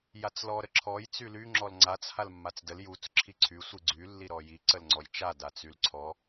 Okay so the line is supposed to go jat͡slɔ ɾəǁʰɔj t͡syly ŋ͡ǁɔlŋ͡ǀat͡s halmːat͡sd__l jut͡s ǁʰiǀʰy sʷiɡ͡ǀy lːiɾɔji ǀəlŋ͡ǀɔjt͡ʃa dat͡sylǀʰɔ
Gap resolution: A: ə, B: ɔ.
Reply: A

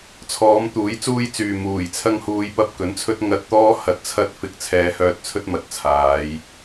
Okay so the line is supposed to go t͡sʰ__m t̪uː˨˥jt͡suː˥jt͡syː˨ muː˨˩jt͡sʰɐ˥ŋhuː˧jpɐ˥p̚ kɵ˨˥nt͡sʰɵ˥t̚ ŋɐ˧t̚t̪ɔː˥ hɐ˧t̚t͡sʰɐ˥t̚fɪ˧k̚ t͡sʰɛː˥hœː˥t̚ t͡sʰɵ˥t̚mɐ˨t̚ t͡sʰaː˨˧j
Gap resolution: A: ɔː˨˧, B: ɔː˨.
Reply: A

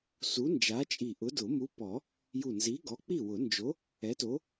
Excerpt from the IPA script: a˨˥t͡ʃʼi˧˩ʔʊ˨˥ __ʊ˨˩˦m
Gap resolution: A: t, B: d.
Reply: B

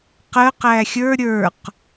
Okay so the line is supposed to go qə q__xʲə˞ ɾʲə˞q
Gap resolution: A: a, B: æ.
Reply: B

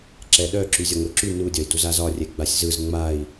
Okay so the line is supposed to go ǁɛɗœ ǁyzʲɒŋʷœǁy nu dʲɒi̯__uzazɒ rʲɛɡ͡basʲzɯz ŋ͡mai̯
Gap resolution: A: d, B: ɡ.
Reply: A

